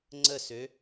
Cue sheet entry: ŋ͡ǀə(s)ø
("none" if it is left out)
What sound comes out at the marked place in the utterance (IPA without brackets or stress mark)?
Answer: s